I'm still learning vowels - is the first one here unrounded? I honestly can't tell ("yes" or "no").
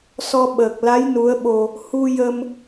no